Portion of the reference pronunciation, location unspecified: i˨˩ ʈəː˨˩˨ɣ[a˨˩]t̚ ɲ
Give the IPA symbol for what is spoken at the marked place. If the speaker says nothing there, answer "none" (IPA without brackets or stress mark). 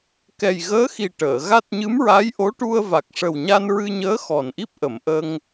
a˦˥